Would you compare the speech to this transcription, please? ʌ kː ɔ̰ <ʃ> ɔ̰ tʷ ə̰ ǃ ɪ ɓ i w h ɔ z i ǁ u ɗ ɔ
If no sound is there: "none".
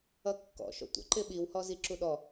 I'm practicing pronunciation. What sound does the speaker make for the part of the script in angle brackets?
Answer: ʃ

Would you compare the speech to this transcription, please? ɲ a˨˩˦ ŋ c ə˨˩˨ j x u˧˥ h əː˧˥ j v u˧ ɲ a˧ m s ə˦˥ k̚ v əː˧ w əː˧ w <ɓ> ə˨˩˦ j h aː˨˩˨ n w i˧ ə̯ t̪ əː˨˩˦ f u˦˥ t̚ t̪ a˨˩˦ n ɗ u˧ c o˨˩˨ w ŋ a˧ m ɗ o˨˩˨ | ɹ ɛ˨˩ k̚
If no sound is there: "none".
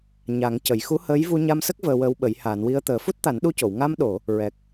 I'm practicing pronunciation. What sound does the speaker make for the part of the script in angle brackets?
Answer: ɓ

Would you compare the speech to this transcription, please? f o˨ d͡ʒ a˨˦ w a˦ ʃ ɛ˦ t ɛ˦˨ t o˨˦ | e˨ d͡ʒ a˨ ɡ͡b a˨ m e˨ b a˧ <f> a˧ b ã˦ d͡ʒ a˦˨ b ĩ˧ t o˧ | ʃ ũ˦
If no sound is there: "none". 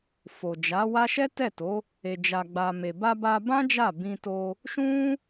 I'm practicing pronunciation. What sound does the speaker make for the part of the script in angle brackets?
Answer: b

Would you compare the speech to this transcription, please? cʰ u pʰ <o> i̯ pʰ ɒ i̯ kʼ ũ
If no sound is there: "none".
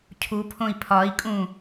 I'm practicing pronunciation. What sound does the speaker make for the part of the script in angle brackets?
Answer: õ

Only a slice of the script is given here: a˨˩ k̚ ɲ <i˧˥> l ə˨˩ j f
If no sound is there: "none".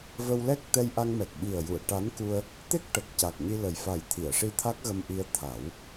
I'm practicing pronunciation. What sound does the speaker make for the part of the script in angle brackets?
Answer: i˧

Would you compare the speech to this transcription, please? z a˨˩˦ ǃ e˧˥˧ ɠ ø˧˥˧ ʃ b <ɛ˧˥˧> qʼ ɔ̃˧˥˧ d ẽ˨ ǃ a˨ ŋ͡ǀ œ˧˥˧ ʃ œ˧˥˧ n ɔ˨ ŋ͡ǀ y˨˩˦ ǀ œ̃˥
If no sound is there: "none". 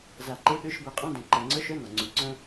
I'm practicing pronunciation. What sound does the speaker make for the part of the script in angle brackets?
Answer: ɛ˨˦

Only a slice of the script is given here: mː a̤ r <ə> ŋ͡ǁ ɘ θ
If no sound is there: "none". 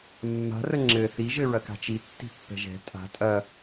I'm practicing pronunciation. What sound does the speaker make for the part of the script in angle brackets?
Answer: ə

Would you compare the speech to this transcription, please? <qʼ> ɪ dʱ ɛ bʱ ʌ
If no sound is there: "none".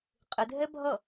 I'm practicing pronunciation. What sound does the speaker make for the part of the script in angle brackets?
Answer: qʼ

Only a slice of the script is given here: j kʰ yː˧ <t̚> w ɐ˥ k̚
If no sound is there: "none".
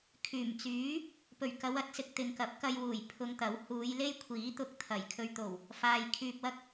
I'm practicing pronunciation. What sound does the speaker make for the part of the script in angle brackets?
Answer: p̚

